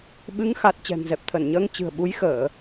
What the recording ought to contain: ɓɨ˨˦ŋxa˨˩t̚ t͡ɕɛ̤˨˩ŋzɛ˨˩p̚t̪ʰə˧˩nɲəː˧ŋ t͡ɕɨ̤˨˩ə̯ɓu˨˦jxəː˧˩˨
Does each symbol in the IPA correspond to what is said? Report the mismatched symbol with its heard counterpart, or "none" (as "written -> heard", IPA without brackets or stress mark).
none